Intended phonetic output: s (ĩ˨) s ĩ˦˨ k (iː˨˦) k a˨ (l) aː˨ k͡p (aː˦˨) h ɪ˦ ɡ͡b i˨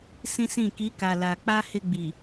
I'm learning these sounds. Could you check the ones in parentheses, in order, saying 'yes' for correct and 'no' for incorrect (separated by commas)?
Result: no, no, yes, no